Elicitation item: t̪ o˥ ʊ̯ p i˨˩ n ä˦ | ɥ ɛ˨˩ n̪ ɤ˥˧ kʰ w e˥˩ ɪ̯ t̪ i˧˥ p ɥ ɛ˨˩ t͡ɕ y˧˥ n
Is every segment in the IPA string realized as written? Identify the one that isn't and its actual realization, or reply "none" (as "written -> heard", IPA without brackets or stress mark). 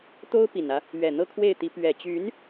none